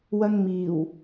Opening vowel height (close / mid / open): open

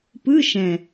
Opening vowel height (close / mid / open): close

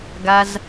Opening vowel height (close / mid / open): open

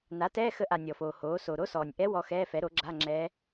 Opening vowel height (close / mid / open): open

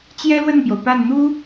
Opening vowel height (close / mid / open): mid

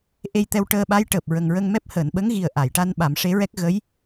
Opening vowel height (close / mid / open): mid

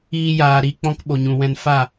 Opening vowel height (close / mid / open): close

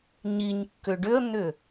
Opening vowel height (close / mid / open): close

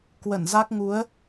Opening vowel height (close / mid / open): mid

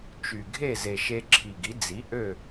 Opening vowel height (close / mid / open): close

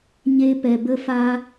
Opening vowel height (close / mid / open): mid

